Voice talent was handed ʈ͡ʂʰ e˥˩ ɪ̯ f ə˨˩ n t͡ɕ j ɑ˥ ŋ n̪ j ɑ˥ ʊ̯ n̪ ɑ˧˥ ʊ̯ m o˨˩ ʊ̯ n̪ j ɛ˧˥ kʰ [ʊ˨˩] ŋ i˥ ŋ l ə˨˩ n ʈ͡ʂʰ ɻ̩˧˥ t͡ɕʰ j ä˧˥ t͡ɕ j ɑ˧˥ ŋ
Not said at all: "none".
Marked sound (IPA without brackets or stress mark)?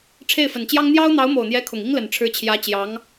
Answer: ʊ˨˩